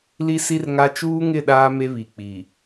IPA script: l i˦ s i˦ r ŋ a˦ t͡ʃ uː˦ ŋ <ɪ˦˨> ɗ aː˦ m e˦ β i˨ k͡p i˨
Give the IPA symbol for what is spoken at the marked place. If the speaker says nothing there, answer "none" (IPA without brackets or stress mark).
ɪ˦˨